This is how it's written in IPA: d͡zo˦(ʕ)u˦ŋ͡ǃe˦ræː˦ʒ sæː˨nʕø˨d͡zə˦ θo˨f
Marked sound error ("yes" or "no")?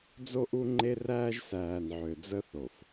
yes